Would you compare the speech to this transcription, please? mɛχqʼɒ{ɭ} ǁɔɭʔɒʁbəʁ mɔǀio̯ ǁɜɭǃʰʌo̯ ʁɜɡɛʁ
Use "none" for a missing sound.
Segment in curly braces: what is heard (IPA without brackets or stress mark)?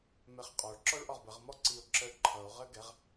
ɭ